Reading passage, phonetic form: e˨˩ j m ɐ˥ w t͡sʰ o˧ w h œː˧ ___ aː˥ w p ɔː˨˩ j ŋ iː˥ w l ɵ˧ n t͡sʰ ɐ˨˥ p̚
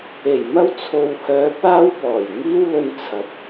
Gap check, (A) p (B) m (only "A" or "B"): A